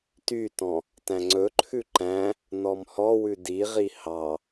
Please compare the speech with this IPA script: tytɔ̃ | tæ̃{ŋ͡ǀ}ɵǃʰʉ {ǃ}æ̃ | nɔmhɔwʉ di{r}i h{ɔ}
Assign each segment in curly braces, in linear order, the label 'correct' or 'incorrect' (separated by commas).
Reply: correct, correct, incorrect, incorrect